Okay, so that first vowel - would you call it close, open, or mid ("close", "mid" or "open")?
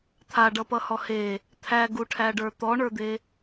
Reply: open